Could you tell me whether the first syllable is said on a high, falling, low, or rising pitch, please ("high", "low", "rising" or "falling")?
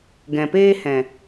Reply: low